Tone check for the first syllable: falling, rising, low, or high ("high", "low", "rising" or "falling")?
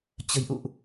low